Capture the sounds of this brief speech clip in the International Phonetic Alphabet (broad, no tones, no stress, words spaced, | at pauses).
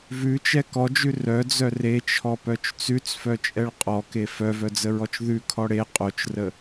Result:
vʉt͡ʃɛ kɔd͡ʒʉ rœd͡zœ ret͡ʃʰɔpœt͡ʃ t͡sʉt͡sfœt͡ʃʼɛɭ qʼɔke fœvœd͡zəɹɔt͡ʃ ðʉkʰɔ ɽe qʼot͡ʃrə